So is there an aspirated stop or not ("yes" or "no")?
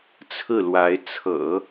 yes